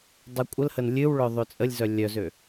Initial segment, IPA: dˤ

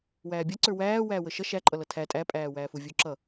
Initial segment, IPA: w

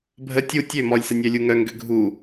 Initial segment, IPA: bʱ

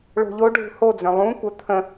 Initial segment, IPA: ɭ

